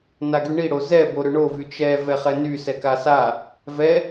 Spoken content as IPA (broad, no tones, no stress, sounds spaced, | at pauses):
n a ɡ y ɳ i ɽ o z ɛ b o ɾ ʏ ɳ o v y t͡ʃ ɛ v ɛ χ ɛ n y s ɛ k a s a | v ɛ